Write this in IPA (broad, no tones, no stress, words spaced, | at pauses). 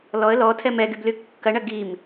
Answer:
lɔə̯ lɔtʰɛm ɛɡybly kːɐɳɐ ɡim